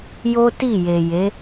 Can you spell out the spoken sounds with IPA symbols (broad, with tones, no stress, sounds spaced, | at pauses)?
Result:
j o˦ t i˦˨ j e˨ j e˨˦